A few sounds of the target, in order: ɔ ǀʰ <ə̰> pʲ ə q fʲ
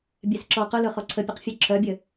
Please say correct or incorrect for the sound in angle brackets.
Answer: incorrect